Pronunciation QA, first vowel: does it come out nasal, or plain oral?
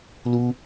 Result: oral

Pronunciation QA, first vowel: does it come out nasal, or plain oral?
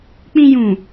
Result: nasal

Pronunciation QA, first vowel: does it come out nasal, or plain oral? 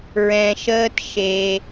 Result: nasal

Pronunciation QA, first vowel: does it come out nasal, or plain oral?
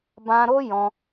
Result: nasal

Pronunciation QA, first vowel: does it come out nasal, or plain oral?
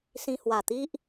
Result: nasal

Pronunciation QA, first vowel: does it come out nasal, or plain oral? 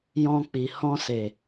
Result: nasal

